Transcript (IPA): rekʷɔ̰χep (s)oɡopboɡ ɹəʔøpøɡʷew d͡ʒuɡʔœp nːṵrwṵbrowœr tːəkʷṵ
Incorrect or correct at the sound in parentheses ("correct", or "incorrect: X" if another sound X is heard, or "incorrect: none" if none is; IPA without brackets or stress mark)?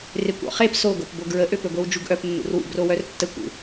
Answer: correct